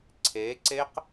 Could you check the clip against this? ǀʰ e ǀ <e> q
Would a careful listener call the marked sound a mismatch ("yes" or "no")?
no